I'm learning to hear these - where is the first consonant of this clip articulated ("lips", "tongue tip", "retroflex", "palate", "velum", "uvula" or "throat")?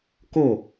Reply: velum